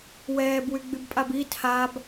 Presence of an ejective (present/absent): present